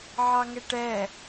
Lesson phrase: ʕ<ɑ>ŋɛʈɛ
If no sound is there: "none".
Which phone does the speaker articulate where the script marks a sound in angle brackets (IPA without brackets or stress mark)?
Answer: ɑ